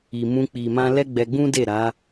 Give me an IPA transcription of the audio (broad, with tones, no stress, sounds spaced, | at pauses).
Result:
i˨ m ũ˧ k͡p i˨ m ã˧ l ɛ˦ ɡ͡b ɛ˧ ɡ͡b ũ˦ d e˦˨ ɾ a˨˦